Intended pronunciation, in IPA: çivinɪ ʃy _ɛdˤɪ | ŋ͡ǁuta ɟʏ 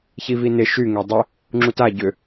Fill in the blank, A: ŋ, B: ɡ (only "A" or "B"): A